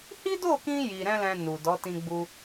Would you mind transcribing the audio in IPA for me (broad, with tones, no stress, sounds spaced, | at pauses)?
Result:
h i˦ d o˦˨ k ĩ˧ j i˧ ɾ ɛ̃˦ l ɛ̃˧ n u˨ d ɔ˨˦ t ĩ˧ ɡ͡b u˧